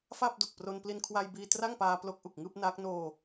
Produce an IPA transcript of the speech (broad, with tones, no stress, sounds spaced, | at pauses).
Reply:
f aː˥˩ p̚ d o˨˩ k̚ p r o˧ n p l i˧ n kʰ w a˧ j b iː˧ t r a˥˩ ŋ p aː˧ p l o˦˥ k̚ ʔ u˨˩ k̚ ŋ ɯː˥˩ p̚ n aː˦˥ k̚ n oː˧